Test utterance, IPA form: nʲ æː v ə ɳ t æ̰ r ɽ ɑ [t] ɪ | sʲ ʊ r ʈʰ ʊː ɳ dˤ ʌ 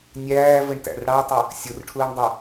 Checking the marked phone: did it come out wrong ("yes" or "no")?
yes